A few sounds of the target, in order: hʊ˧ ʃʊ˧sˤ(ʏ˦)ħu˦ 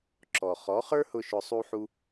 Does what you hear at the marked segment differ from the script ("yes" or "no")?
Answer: yes